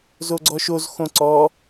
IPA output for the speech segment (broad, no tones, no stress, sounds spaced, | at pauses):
z o ɡ͡ǀ ɔ ʃ o z x õ ǀ ɔ